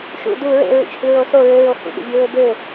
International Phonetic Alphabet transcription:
ʃ ṵ d u ɹ ḛ ɹ ḭ t͡ʃ h y ɹ o s o ɹ ø ɹ o h ṵ ɠ ṵ vʲ u ɹ ø b ø

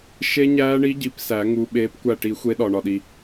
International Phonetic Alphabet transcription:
ʃ e˦˥ ɲ æː˦˥ ɳ i˦˥ ɟ i˨˦ p s æ˨˩˦ ŋ u˨˦ ɓ eː˨˦ p kʷ æ˧˩ ʈ i˨˩˦ xʷ e˨˦ ɗ ɒ˩ ɳ ɒ˩ ɗ i˩

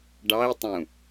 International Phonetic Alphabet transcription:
ɖ ɑ i̯ tˤ ũ

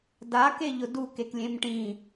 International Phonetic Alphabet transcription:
d a k e ʎ ʊ d u k e k lʲ ẽ m ʈ ĩ

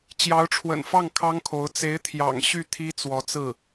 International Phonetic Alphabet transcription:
t͡ɕ j ɑ˧˥ ʊ̯ ʈ͡ʂʰ w ə̰˨˩ n f ɑ˥˩ ŋ kʰ ɑ˥ ŋ kʰ o˧˥ ʊ̯ t͡s e˧˥ ɪ̯ t̪ʰ j ɑ̰˨˩ ŋ ɕ y˥˩ t̪ʰ i˥ t͡s w ɔ˧˥ t͡s ɹ̩˥˩

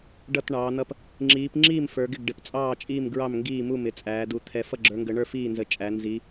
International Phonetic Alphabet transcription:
ɖ ʌ˥˨ t ɳ ɑː˨˦ n̪ ʌ˥˨ p | ŋ͡ǁ iː˨˦ p ŋ͡ǁ iː˥˨ m f ə˞˨˦ ɡ ɪ˥˨ ɡ ɖ ɪ˨˦ p t͡sʼ ɑː˥˨ t͡ʃʼ iː˥˨ m ɡ ɹ ɑ˥˨ m ŋ ɡ iː˥˨ m u˥˨ m ɪ˨˦ t͡sʼ æː˨˦ d u˨˦ t̪ʰ ɛ˨˦ f ʌ˥˨ ɡ͡ǁ ə˞˨˦ ŋ ɡ ə˨˦ ɳ ə˞˥˨ f iː˥˨ n z ə˨˦ t͡ʃʼ æ˨˦ n z i˨˦

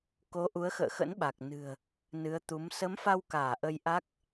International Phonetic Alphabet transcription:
k o˨˦ ʔ u˨˦ ə̯ x ə̰ː˧˨ x ə̰˧˥ n ɓ a˨˩ k̚ n ɨ̤˨˩ ə̯ | n ɨ˨˦ ə̯ t̪ u˨˦ m s ə˨˦ m f a˧ w k aː˧˩ ʔ ə˧ j ʔ a˦˥ k̚

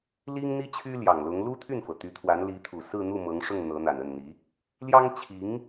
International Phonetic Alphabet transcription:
l i˥ ŋ n̪ i˥ t͡ɕʰ y˥ l j ɑ˨˩ ŋ l ʊ˧˥ ŋ l u˥ t̪ʰ y˥˩ n f ɤ˩ t̪ y˧˥ t̪ʰ w a˧˥ n l i˧˥ t̪ʰ u˨˩ s ɹ̩˥˧ n̪ u˥˩ m ɤ˧˥ ŋ ʂ ʊ˥˩ ŋ n̪ ɤ˧˥ n̪ a˨˩ n ə˥˩ n n̪ i˧˥ | l j ɑ˥ ŋ t͡ɕʰ i˧˥ ŋ

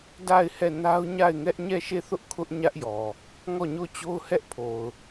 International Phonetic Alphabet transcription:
d a˦˨ ɪ̯ h ɛ˦˨ n a˦ ʊ̯ ɲ a˦˨ ɪ̯ ŋ ɛ˦ ʔ ɲ ɛ˦˨ ʃ e˦˨ θ ʊ˦ ʔ kʰ ʊ˦ ʔ ɲ ä˦ ʔ j ɔ˨ | ŋ ɔ˦˨ ɲ o˦˨ t͡ɕ o˦ ʊ̯ h ɛ˦ ʔ pʰ o˨ ʊ̯

